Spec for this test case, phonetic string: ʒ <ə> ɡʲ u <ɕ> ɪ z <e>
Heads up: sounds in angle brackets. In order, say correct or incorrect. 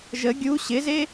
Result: correct, correct, correct

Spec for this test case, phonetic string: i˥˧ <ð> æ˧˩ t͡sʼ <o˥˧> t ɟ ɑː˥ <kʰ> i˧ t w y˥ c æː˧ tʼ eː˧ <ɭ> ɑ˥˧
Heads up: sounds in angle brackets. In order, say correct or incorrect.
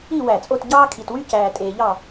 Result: incorrect: w, correct, correct, incorrect: ʎ

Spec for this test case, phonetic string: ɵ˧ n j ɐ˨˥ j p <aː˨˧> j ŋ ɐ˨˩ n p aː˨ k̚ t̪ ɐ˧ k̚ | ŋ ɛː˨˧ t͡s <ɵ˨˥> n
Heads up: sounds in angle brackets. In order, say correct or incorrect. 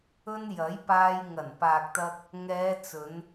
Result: incorrect: aː˧, incorrect: ɵ˨˧

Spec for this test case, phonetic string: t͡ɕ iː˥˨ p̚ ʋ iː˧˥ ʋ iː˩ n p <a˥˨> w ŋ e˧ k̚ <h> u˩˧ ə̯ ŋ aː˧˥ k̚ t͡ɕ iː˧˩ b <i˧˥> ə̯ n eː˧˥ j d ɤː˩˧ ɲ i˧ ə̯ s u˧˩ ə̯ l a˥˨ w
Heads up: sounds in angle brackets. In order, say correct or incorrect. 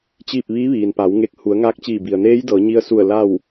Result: incorrect: a˩˧, correct, incorrect: i˩

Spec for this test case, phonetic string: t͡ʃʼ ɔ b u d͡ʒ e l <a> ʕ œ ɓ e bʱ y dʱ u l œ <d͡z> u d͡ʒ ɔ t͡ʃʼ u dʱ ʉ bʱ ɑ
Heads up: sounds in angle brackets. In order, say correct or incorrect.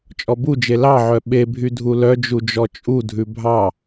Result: incorrect: ɑ, incorrect: d͡ʒ

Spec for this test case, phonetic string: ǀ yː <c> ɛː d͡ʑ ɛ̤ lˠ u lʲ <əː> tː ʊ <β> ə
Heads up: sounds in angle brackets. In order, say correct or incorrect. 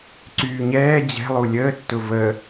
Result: incorrect: ɲ, correct, incorrect: v

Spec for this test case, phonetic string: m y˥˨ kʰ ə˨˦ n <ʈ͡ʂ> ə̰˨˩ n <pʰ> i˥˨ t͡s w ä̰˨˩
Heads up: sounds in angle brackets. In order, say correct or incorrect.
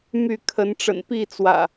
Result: correct, incorrect: p

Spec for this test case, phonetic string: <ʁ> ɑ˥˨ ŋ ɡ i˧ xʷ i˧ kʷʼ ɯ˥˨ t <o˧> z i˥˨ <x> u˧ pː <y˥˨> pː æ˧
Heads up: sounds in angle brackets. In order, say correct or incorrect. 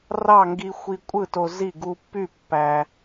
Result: incorrect: r, correct, incorrect: ɡ, correct

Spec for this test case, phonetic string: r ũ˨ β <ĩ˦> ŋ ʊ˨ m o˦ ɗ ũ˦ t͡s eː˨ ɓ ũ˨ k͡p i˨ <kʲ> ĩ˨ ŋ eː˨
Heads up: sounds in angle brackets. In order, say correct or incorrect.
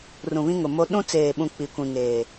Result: correct, incorrect: kʷ

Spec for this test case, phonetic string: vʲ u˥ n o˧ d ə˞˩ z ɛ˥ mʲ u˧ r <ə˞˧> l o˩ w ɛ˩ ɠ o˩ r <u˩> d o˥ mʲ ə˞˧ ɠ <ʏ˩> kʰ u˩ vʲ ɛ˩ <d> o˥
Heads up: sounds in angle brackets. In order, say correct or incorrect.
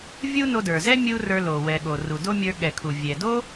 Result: correct, correct, incorrect: ɛ˩, correct

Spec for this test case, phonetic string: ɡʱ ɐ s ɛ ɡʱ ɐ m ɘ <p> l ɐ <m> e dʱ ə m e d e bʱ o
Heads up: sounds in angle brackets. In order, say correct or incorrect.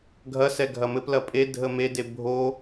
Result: correct, incorrect: pʼ

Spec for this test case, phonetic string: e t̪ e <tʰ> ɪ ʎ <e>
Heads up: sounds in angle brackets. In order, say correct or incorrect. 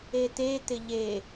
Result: incorrect: t̪, correct

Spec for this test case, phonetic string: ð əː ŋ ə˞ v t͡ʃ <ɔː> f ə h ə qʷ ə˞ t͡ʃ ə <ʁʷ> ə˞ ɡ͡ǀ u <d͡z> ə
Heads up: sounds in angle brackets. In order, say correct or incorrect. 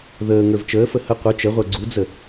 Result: incorrect: əː, correct, correct

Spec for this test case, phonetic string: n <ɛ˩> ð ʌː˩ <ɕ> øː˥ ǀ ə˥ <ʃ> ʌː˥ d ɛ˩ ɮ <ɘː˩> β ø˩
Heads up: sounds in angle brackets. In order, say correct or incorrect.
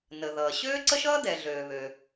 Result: incorrect: ə˩, correct, correct, incorrect: øː˩

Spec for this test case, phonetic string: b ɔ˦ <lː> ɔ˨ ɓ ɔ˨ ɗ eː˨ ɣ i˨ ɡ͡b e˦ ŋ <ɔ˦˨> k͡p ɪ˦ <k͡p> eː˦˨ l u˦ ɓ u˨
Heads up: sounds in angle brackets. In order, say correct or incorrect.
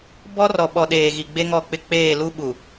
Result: incorrect: r, correct, correct

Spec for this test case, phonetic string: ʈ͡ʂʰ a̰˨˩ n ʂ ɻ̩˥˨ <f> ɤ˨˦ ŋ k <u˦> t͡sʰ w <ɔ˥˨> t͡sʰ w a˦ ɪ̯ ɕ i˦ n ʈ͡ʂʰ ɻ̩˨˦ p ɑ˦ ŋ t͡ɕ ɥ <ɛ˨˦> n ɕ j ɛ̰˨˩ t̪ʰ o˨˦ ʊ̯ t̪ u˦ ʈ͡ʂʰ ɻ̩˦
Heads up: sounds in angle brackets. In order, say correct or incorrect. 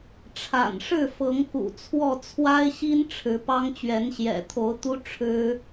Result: correct, incorrect: ṵ˨˩, correct, correct

